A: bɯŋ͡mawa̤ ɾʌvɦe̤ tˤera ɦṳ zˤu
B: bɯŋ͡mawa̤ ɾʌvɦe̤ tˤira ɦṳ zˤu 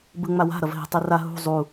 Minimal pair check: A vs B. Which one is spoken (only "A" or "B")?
B